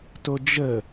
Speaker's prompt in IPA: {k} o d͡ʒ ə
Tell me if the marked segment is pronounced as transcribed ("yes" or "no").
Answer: no